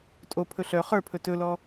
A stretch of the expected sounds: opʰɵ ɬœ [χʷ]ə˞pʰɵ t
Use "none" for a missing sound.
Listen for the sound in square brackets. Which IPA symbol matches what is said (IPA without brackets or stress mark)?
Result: χ